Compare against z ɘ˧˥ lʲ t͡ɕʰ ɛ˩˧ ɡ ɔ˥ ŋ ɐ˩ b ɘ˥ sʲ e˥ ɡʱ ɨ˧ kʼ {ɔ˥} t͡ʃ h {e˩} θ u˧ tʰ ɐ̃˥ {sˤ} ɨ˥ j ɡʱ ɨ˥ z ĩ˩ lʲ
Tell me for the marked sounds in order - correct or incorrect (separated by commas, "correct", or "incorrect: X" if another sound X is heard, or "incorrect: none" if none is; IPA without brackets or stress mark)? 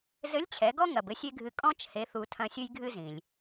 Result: incorrect: ɔ̃˥, incorrect: e˧˥, incorrect: sʲ